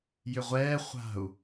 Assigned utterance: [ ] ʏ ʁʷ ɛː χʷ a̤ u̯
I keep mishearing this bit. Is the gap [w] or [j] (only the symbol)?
j